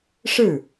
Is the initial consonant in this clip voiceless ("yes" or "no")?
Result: yes